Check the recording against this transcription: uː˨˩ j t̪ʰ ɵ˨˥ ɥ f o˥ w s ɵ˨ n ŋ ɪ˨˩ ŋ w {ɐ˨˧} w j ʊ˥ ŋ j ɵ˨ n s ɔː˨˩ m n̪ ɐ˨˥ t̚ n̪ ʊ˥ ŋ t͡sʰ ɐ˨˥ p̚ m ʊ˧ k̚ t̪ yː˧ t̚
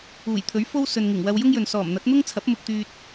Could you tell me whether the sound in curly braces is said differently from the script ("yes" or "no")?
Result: yes